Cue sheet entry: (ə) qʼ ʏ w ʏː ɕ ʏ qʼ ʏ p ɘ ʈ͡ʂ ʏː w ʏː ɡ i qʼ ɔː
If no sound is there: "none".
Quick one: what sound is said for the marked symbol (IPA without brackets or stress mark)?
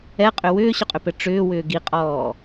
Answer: ɛ